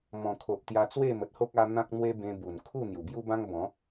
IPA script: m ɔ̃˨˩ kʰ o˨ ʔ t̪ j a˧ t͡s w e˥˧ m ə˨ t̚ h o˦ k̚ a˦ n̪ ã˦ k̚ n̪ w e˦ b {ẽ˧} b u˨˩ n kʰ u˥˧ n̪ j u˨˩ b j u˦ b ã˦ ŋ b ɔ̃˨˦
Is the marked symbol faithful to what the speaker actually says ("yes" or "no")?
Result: yes